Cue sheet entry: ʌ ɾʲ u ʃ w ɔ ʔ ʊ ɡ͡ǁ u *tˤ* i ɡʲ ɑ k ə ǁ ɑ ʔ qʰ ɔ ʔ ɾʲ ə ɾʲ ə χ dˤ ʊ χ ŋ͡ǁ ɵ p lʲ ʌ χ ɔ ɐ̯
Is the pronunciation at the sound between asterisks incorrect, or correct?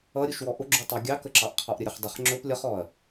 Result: correct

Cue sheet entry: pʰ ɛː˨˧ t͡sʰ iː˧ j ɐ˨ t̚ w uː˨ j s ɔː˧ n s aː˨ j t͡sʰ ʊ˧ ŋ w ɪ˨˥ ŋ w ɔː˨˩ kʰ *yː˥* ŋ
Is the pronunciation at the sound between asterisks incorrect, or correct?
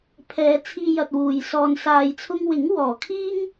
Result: incorrect: iː˥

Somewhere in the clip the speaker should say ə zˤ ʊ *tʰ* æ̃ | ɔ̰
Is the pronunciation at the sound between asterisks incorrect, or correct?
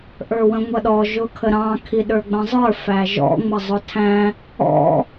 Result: correct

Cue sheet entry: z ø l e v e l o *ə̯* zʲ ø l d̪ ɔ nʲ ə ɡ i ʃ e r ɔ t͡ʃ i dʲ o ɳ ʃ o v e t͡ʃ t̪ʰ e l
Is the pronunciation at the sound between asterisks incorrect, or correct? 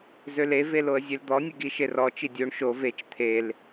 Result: correct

